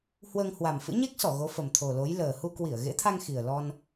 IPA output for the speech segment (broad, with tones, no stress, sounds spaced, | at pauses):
h w əː˧ ŋ h w a˨˩ m f ɨ̰˧˥ ɲ e˦˥ k̚ s ɔ˧˩ ɣ o˨˦ f ə˨˩ m t̪ʰ o˨˩ l o˨˦ j l əː˨˩ h u˧ k w i˧˩ ə̯ ɣ ḛ˧˥ t̪ʰ a˧ ŋ x i˨˩ ə̯ l ɔ˧ n